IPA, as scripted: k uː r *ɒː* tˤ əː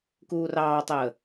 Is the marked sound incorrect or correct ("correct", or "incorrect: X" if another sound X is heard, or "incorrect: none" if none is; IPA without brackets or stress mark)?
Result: incorrect: ɑː